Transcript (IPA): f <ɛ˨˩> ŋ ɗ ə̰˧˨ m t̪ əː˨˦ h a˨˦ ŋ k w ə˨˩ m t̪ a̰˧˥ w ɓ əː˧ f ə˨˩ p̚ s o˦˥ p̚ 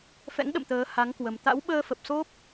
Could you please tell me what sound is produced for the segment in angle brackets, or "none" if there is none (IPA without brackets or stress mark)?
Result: ɛ̰˧˥